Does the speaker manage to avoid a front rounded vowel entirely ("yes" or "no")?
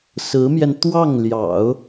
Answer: yes